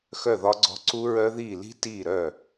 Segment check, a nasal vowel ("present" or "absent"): absent